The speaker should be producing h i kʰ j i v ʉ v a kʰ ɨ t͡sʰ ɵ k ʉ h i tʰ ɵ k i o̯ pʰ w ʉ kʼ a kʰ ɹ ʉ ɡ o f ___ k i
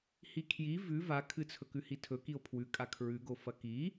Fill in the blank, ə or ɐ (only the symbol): ɐ